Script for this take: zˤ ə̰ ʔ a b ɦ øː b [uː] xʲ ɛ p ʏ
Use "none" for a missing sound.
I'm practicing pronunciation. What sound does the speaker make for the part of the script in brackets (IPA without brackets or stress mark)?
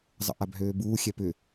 uː